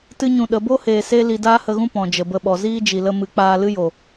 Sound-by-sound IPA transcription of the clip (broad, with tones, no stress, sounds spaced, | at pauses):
t ɨ˦ ɲ ũ˧ ɗ ə˨˦ b o˦ h eː˨ s e˦ l i˧ d aː˦ h ə˧ ɣ ũ˦ p ɔ̃˨ d͡ʒ ə˨ b ə˧ ɓ ɔ˨ z iː˦ d͡ʒ i˨ l ə˧ m ɨ˨ k͡p aː˧ l ɨ˦ j o˨